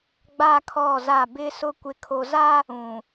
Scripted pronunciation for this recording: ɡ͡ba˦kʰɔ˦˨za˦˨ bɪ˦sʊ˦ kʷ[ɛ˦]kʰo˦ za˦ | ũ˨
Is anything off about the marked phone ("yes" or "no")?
yes